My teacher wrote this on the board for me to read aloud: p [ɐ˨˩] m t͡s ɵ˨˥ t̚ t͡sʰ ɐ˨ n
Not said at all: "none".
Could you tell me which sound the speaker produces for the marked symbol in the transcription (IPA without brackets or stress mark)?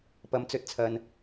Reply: ɐ˨˥